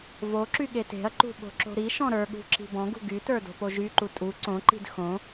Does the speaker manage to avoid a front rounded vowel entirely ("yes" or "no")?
no